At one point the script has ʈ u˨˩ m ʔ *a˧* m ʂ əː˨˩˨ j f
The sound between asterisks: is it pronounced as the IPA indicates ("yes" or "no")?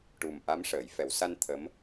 no